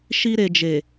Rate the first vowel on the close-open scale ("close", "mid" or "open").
close